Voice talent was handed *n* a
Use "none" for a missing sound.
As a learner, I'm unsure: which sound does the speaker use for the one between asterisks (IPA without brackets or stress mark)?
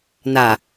n